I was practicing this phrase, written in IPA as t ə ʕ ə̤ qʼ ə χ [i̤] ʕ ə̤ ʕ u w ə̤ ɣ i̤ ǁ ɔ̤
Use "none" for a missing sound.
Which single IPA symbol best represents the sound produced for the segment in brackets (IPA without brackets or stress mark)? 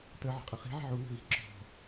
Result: i̤